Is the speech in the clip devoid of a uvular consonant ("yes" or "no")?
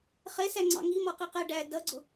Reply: no